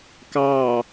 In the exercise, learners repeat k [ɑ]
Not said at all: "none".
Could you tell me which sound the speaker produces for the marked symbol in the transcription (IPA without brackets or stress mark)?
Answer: ɑ